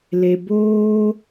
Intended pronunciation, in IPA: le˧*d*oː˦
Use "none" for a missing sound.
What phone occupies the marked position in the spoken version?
b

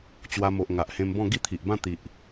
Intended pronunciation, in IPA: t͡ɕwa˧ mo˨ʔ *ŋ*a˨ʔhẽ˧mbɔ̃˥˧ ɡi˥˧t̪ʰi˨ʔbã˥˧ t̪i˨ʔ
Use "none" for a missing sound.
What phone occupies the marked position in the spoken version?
ŋ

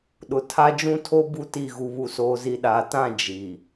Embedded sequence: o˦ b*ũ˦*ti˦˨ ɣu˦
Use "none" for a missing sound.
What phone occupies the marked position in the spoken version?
u˦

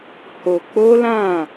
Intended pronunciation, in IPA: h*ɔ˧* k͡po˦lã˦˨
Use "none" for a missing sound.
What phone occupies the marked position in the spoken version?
o˧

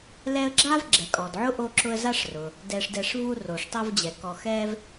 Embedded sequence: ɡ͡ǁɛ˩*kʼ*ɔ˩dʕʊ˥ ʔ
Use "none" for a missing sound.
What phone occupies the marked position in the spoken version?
kʼ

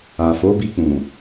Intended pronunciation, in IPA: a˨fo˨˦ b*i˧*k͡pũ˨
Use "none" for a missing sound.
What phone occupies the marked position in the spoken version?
i˧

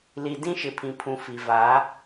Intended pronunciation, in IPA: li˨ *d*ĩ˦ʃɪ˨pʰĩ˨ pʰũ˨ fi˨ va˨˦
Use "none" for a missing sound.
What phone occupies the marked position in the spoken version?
d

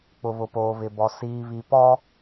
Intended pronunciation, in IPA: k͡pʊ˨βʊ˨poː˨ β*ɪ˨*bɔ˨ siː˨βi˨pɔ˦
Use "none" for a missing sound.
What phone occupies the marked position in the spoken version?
ɪ˨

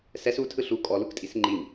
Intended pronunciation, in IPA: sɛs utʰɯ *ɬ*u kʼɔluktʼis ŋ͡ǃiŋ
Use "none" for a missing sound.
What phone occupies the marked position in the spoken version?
ɬ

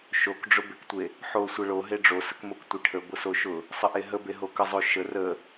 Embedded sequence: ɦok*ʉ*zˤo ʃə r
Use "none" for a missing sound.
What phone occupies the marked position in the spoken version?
ə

